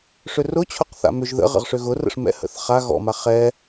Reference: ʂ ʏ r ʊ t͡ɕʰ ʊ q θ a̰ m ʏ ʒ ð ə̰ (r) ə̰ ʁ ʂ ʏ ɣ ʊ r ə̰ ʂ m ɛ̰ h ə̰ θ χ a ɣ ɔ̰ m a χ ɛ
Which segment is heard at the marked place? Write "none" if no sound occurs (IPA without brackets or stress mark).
ʁ